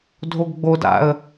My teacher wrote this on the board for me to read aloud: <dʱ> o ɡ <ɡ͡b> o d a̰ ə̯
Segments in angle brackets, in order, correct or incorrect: correct, correct

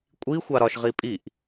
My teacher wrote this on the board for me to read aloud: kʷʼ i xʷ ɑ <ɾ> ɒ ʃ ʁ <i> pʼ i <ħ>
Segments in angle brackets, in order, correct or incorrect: correct, correct, incorrect: ʔ

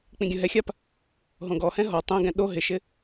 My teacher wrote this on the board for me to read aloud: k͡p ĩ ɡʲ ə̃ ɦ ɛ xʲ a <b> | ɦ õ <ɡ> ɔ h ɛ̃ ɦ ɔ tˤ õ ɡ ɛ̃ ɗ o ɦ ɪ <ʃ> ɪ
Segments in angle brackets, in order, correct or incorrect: incorrect: p, correct, correct

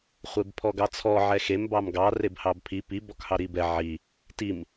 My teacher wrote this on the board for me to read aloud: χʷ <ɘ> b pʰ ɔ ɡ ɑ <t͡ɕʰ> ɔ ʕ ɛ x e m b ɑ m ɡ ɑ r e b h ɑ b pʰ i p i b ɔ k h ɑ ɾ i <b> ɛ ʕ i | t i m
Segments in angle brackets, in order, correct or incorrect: incorrect: e, incorrect: t͡sʰ, correct

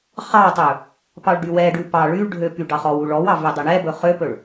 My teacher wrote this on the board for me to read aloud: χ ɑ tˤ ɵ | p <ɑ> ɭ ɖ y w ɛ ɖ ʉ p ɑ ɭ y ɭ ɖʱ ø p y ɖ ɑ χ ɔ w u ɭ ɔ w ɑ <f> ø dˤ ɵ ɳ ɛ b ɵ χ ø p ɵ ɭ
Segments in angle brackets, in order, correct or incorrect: correct, incorrect: v

